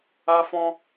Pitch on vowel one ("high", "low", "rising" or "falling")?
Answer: high